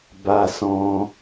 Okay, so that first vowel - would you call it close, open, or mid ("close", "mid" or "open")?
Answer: open